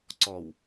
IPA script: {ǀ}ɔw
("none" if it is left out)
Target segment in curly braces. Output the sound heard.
ǀ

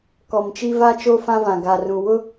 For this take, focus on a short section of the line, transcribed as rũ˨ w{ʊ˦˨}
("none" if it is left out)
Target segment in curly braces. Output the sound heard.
ʊ˦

